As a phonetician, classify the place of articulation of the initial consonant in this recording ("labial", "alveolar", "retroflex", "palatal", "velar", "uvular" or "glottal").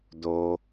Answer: alveolar